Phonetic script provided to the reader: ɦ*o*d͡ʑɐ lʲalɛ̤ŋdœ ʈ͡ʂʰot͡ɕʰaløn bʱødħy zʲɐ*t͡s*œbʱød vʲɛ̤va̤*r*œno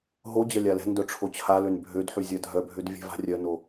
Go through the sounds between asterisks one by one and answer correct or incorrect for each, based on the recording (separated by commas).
correct, incorrect, incorrect